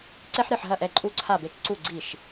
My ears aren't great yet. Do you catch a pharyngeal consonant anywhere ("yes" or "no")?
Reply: yes